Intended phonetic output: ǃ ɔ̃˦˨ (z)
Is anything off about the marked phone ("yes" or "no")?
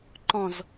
no